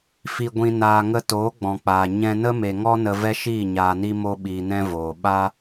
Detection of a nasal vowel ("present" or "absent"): present